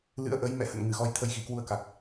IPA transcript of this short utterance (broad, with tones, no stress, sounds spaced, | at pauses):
l ɨ̰˧˥ ə̯ ʔ ə˨˦ j m ɛ̰˧˨ h ə̰˧˨ n ŋ ɨ˧˩ ɣ ɔ˧ j t̪ʰ ə˧ j ɣ i˨˩ k w u˧ ə̯ k a˨˩ k̚